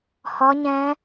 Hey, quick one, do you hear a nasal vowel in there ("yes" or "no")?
yes